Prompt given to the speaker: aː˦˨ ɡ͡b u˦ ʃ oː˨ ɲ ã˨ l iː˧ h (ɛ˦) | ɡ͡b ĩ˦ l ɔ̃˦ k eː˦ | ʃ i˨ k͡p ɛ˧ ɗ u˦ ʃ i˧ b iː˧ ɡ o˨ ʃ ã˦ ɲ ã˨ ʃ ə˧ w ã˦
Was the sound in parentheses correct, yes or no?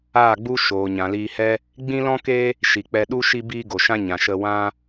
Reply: yes